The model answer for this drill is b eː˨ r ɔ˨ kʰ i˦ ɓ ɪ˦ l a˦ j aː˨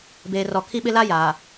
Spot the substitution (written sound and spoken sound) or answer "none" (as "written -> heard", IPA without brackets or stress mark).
none